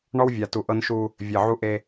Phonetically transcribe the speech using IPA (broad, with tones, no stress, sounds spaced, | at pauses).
ɳ ɔ˦ w vʲ a˨ t u˨ ʔ ɤ˦ n ʃ u˦ | vʲ e˨ ʕ u˦ ʔ e˦